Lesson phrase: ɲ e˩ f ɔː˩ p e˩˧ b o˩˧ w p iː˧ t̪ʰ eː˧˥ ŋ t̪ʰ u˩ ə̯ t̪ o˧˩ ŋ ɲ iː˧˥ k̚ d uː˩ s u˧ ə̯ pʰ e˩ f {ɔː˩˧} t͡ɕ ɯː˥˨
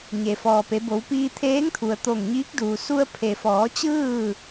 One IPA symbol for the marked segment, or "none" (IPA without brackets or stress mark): ɔː˩˧